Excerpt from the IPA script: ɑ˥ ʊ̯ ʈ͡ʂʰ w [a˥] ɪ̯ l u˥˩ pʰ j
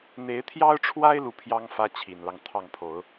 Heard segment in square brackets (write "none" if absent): a˥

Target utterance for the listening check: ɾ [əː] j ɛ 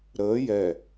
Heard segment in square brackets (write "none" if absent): əː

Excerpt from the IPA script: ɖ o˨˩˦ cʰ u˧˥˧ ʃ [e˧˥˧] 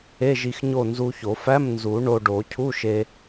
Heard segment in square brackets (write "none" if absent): e˧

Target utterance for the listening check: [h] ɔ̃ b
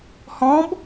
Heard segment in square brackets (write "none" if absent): h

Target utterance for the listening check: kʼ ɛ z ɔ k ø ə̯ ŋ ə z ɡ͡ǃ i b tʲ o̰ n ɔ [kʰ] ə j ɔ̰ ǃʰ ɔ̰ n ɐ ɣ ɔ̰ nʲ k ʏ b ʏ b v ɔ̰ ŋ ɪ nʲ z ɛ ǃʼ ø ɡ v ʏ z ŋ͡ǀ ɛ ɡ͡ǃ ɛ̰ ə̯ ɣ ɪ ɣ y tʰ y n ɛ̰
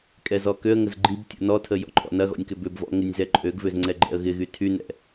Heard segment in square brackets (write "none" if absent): tʰ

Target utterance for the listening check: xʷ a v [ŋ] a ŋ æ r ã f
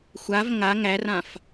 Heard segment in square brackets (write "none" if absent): ŋ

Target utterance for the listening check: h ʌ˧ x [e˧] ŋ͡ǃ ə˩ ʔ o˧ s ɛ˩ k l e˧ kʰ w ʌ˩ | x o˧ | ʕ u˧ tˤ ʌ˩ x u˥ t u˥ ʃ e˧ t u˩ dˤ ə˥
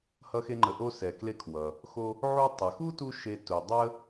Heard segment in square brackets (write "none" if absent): e˧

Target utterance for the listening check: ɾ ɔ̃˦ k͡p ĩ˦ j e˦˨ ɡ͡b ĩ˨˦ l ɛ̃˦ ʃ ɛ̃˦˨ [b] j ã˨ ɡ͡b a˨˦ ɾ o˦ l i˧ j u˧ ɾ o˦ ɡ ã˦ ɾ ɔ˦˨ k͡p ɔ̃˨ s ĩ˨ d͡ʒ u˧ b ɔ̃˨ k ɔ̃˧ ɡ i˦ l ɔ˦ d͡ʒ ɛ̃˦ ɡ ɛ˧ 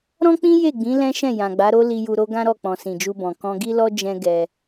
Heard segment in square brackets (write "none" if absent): none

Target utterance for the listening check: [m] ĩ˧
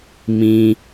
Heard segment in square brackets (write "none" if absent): m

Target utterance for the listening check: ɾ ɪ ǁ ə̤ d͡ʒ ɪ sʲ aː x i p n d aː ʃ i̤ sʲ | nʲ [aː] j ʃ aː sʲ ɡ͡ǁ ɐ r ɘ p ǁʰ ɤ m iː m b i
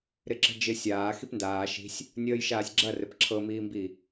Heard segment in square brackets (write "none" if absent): əː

